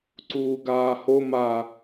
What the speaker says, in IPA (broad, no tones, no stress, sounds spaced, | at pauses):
ǀ uː ɡ aː h o m a